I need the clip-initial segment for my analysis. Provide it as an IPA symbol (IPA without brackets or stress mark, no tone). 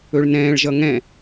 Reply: ɵ